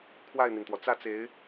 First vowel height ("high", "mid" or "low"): low